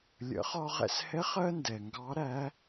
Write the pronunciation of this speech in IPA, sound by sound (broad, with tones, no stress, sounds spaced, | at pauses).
lʲ ə̰˩˧ χ ɒ˧ ʁ ɛ̰˧ s h ɛ˧˥ χ ɜ˥ n d ɛ˩ ŋ ɡ ɑ˧˥ ɾ æ˧˥